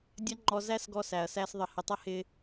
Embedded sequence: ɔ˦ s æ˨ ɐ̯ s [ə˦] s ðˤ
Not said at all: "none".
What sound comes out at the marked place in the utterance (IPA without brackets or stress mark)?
æ˦